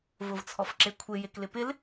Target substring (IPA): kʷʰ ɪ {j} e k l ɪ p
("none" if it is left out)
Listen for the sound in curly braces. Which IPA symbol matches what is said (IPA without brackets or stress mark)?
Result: j